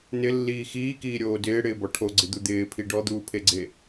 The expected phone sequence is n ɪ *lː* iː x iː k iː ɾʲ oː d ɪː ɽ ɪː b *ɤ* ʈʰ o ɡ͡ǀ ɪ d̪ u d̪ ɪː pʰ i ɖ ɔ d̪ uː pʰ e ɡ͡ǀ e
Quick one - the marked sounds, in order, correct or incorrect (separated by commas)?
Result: correct, incorrect